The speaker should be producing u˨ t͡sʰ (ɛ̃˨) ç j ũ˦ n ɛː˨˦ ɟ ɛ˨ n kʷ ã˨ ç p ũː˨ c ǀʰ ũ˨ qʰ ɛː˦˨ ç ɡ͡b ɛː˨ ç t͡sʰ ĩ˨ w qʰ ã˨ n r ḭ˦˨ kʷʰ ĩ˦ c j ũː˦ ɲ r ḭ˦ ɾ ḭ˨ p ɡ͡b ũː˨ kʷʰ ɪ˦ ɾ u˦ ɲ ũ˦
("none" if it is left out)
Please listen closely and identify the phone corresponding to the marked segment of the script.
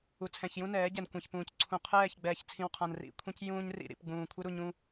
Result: ɛ̃˨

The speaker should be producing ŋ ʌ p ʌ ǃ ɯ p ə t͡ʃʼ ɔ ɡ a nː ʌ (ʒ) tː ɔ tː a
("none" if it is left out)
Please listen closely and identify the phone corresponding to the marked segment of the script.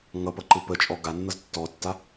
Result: z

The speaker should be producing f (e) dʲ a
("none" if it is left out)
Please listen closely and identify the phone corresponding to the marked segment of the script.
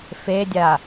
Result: e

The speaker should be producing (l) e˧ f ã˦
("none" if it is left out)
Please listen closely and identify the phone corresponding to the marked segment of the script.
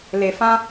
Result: l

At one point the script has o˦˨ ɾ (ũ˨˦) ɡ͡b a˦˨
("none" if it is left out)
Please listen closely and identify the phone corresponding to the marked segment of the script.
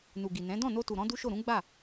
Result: ũ˨˦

